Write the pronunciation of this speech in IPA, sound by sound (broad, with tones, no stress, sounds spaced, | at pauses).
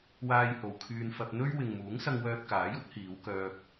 w aː˥ j h o˧ w kʰ yː˧ n f ɐ˧ p̚ n̪ ɵ˥ ɥ w ɪ˨ ŋ m uː˨˥ ŋ s ɐ˧ ŋ w œː˧ t̚ k aː˨˥ j ʊ˥ k̚ h iː˨˧ w k œː˧ p̚